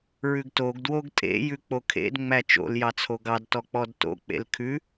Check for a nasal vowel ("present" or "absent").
absent